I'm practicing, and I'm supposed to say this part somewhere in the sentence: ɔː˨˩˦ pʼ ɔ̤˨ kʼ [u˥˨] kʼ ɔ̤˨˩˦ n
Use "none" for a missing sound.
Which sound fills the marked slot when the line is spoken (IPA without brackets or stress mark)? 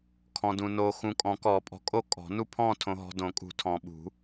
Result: o˥˨